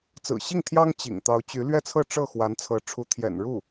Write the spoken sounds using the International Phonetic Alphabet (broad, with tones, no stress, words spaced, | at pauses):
t͡sɹ̩˨˩ɕi˥˩ŋt̪ʰjɑ˥ŋ t͡ɕḭ˨˩ŋ t̪ɑ˧˥ʊ̯t͡ɕy˧˥ lɥɛ˥˧t͡sʰɤ˥˧ ʈ͡ʂɤ˥˩ xwa˧˥nt͡sʰɤ˧˥ ʈ͡ʂʰu˧˥t̪ʰjɛ̰˨˩n ɻu˥˩